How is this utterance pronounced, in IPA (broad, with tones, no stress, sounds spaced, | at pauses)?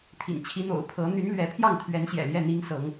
t̪ʰ ḭ˨˩ n t͡ɕʰ i˨˦ n̪ o̰˨˩ ʊ̯ pʰ ɤ˨˦ n̪ y˨˦ n l ɥ ɛ˨˦ pʰ j ɑ˥˨ ŋ t̪ʰ ɥ ɛ˨˦ n ɕ j ɛ̰˨˩ l j ɛ˥˨ n̪ i˦ ŋ s ɤ˨˦ ŋ